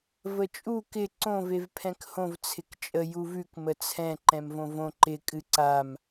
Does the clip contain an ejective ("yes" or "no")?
yes